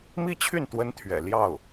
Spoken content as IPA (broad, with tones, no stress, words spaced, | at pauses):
mi˥˧t͡ɕʰy˥˩n t̪wə˥nt̪ʰɥɛ̰˨˩ ljɑ˥˩ʊ̯